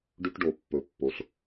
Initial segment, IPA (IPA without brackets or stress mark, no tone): ɖ